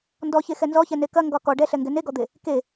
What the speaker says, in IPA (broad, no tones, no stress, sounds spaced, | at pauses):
n d ɔ ç e x ɛ n z ɔ ç ɛ n e k ɐ ŋ ɡ ɒ k ɔ ɖ ɛ ɬ ɛ ŋ ɡ ɛ n e ɡ ɔ d̪ e | k e